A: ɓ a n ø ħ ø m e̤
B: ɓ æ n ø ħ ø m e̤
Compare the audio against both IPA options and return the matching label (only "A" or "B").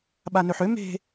A